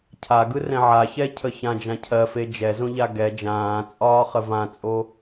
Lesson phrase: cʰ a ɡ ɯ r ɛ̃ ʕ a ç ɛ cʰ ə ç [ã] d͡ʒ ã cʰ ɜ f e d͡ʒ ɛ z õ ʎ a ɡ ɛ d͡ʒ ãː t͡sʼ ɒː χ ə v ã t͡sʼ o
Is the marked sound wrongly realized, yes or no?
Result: no